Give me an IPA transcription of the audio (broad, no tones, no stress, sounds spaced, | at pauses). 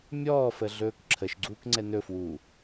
mʲ ɔː f ə ɮ ɵː k ǁʰ ə ʃ ɡ͡ǀ uː k ŋ͡ǀ ɛ n ɵ f w uː